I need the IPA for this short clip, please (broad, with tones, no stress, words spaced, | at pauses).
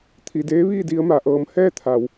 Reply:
t̪ʰi˩ deː˧˥ʋiː˥˨di˧ə̯ma˧˩ ʔɤː˩mhɛː˥˨ t̪ʰa˩w